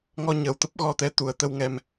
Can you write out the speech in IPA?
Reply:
ŋɔ˧ɲəː˨˩wt̪ə˦˥p̚ ɣɔ˧t̪ɛ˨˦ t̪u˨˩ə̯t̪ə˧wŋɛ˧m

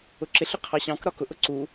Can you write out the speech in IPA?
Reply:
ʊǁɪɬʊ qʰɑɕɑ̃k ɾɒkʊʔʊ ǀu

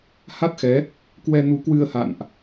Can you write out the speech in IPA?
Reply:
ha˦˥t̚xɛ˨˦ | kwɛ˧nu˨˦kwɨ˧ə̯ ha̰˧˨nʔ

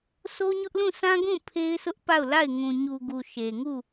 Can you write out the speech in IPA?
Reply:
so˦ɲʊ˦ʔ lũ˦˨sʰã˦ɡũ˦˨ pʰe˦ɪ̯sʊ˦ʔpa˦˨ʊ̯la˦˨ɪ̯ ŋũ˨ɲu˨ɡu˨ ʃe˨ŋu˦˨

